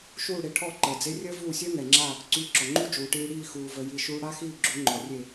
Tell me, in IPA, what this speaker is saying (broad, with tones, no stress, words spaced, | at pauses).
ʃuː˥˩ɽe˧ʈʰɔ˥˩ ǃəː˩d͡ze˥ rʲəː˥vuː˥˩sʲœ˥ŋɛ˩ ŋ͡ǁa˥˩ | ǀyː˧ǁɔ˩ŋ͡ǃu˥ d͡ʒuː˩ʈiː˧ ɽiː˥˩xuː˩ və˧ji˥˩ʃuː˥ ɽa˥xiː˥˩ɡ͡ǁu˩˥ ŋ͡ǃɔ˩rʲe˥˩